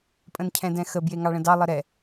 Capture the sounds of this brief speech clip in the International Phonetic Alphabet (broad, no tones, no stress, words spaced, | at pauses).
pʼə̃ncʰɛ̃dɛ̃xə bjeŋɑɭə̃dɑ lˠəɾɛ